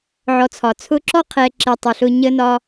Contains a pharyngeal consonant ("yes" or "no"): yes